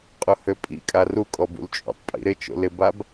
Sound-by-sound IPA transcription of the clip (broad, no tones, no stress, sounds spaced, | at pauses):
qʼ ʊ h ø pʼ ḭ kʼ a r u kʼ ɔ b ṵ l t͡ʃʼ ṵ tˤ pʼ ḭ ɾ ɪ t͡ʃ o̰ l ɪ b a b